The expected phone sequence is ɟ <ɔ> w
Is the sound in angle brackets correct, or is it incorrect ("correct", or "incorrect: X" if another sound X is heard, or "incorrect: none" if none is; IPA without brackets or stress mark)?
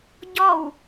correct